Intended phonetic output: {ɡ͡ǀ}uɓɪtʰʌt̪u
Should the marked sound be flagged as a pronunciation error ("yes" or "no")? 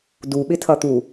yes